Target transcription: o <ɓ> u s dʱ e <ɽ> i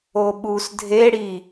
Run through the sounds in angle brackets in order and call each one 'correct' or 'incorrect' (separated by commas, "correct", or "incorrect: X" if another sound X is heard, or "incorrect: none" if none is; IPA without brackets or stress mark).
correct, correct